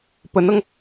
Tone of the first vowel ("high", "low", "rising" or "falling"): rising